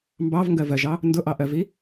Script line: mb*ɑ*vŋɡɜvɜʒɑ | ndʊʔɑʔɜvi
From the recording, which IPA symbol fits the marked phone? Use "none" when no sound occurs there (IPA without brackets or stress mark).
ɑ